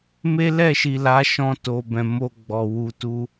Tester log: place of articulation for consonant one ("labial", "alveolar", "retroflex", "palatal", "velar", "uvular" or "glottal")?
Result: labial